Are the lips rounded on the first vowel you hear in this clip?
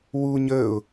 yes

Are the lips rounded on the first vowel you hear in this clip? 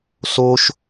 yes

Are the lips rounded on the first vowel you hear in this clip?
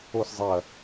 yes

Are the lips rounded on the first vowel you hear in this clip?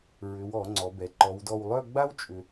yes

